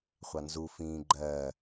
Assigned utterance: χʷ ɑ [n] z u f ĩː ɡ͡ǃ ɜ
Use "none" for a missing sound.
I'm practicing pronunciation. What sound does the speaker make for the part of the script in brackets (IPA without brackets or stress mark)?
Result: n